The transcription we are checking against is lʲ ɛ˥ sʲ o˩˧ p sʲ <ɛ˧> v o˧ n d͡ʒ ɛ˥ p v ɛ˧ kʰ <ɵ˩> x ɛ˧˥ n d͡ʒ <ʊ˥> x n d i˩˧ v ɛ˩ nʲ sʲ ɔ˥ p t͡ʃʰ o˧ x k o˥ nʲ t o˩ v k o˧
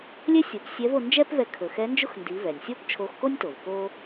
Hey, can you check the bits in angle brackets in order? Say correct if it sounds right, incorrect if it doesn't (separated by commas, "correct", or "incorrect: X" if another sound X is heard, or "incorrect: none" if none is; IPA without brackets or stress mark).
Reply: incorrect: ɛ˧˥, correct, correct